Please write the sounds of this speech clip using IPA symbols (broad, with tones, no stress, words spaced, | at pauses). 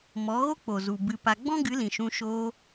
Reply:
mɔ˨˦ɣo˦ k͡po˨zu˨bɨ˧pa˧ ɡ͡bɔ̃˦ɡɨ˨˦lĩ˨ʃũ˧ ʃoː˧